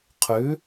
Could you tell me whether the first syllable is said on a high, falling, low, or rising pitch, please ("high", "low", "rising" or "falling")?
rising